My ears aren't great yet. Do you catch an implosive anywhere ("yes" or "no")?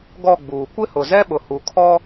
yes